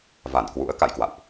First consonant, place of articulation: labial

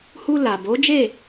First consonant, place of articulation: glottal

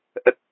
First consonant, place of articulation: glottal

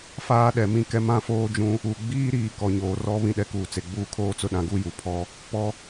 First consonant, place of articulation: labial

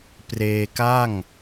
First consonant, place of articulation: labial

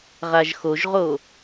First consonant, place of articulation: uvular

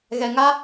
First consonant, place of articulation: velar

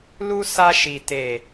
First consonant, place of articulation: alveolar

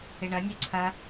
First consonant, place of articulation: retroflex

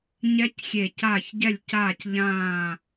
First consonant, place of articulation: palatal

